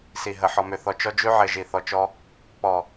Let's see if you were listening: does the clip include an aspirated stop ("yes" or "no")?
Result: no